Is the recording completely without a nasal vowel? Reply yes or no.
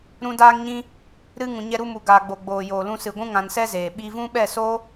no